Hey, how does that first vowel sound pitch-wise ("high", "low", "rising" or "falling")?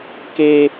high